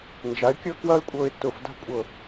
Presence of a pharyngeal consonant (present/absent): absent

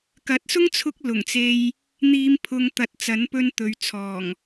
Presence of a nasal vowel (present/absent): absent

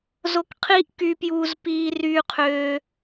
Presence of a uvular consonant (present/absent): present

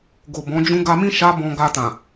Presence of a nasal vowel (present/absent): present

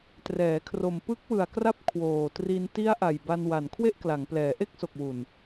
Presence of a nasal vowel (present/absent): absent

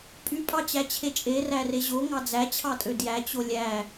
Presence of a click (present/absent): absent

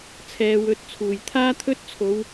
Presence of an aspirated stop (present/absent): present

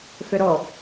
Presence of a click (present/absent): absent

